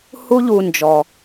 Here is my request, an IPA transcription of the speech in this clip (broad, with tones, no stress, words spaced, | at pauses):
hu˦ʎu˧ nd͡ʒɔ˧